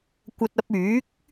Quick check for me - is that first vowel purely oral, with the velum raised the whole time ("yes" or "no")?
yes